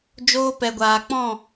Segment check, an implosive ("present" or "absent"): absent